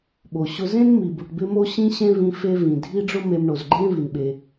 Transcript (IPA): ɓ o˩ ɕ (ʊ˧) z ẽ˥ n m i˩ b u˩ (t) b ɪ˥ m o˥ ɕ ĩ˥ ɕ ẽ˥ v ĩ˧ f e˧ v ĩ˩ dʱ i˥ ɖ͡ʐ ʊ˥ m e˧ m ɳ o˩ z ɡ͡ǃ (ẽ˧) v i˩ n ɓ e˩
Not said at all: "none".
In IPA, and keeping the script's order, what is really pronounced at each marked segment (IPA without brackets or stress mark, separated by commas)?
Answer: ʊ˧, ʈ, ẽ˥